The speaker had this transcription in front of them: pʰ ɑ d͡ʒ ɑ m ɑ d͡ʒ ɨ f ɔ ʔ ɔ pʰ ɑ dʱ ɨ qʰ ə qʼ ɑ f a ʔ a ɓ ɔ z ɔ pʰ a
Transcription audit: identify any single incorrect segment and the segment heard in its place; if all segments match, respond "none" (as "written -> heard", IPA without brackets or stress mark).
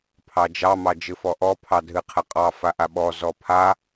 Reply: none